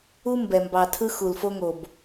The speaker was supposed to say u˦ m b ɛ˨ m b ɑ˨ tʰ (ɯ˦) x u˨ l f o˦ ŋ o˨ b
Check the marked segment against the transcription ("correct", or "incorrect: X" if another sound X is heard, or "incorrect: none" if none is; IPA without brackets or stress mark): correct